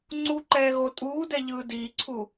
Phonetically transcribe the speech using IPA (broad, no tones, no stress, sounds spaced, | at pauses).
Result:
ŋ͡ǀ u ǃ ɛː ɣ o tʼ uː d ɛ ʎ ɯː d iː ǀʰ u